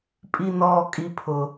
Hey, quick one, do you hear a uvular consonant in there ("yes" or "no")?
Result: no